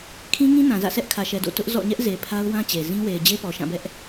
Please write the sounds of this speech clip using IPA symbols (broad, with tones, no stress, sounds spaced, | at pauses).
kʰ ĩ˦ ŋ ĩ˦ n ã˨ z ä̰˦˨ s ɛ˦ ʔ kʰ ä˨ ʃ ɛ˨ d o̰˦˨ t ʊ˦ ʔ z ɔ̰˦˨ ɲ ɛ˦ ʔ z e˨ pʰ a˦ ʊ̯ w ã˦ t͡ɕ e˨ z ĩ˦ w e˨ ɪ̯ d͡ʑ e˦ p ɔ˨ ʃ ã˦˨ b ɛ˦ ʔ